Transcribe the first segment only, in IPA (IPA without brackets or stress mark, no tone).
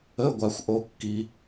ə